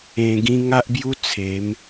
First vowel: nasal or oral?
nasal